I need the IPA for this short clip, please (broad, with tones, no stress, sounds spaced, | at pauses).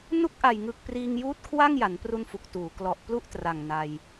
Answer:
n u˥˩ k̚ ʔ a˨˩ j ŋ ɯ˨˩ k̚ p r iː˧ ŋ j uː˦˥ t̚ kʰ w a˥˩ ŋ j a˩˦ n p r u˧ n f u˨˩ k̚ t uː˩˦ k l ɔ˨˩ ʔ p l u˥˩ ʔ t r a˨˩ ŋ n a˧ j